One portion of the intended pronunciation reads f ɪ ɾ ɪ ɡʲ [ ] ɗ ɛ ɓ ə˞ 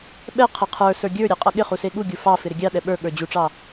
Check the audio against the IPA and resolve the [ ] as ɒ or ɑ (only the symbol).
ɑ